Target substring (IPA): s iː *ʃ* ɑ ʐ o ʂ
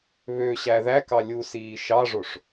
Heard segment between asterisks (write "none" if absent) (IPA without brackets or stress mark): ʃ